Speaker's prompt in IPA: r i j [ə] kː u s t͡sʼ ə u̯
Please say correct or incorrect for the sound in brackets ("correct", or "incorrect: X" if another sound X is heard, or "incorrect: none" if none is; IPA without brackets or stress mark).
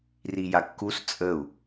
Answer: incorrect: a